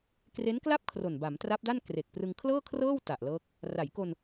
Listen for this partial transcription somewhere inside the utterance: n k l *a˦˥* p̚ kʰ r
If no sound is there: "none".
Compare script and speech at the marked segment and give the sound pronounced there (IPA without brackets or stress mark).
a˥˩